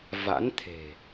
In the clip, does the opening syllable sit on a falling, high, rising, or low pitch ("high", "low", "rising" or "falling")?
rising